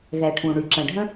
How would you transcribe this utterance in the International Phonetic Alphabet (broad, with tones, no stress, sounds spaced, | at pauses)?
ɣ ɛ˩ ʈʰ ũ˩ ɳ y˩ ǁ ə̃˩ ɖʱ ə̃˥